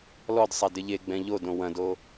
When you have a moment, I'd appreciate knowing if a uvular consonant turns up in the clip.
no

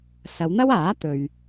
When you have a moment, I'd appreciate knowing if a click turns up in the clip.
no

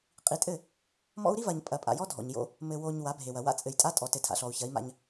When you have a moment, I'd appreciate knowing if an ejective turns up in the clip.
yes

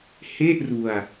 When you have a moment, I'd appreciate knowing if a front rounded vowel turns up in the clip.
no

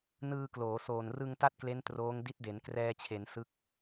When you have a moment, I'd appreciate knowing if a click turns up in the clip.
no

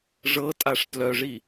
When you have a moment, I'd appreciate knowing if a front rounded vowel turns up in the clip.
yes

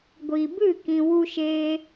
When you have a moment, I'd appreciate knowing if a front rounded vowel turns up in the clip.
no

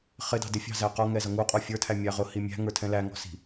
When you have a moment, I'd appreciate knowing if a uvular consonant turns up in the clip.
yes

